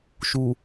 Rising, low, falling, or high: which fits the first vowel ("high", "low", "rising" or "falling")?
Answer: low